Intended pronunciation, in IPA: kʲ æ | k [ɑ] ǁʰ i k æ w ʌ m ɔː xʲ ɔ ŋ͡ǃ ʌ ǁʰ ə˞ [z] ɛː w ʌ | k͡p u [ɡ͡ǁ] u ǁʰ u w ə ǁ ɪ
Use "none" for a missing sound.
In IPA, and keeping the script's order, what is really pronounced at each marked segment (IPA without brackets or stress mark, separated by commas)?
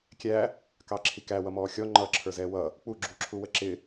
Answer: ɑ, z, ɡ͡ǁ